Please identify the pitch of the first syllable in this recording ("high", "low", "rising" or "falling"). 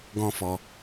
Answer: high